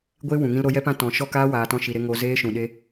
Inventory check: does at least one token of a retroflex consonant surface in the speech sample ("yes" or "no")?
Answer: no